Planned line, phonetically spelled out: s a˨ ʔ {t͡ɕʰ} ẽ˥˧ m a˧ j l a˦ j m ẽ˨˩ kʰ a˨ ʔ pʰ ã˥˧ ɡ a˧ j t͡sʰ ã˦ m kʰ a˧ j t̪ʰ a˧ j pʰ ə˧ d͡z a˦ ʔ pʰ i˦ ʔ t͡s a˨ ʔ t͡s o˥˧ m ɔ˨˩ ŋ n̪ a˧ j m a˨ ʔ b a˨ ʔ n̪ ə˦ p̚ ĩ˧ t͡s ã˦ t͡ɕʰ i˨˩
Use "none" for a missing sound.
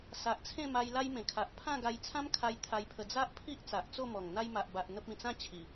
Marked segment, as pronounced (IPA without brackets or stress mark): t͡sʰ